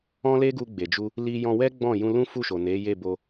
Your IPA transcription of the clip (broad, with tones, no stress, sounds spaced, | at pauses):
ɔ̃˦ l e˦ ɡ u˧ ɡ͡b e˨ d͡ʒ u˧ | l i˧ j ɔ̃˧ w ɛ˦ ɡ͡b ɔ̃˦˨ j ũ˧ l ũ˦ f u˦˨ ʃ o˨ n e˨˦ j e˦˨ b o˧